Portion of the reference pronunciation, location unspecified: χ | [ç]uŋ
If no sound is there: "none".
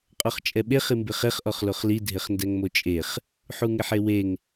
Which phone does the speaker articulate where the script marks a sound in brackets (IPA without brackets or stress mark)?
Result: ħ